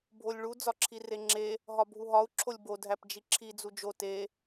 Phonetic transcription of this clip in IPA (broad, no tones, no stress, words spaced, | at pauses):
bʱolʲɭu d͡zɒǁʰireŋ͡ǁe | ɦɒbʱuɦɒu̯ ǁʰolʲbo dʱæpd͡ʒiǁʰi d͡zud͡ʒo te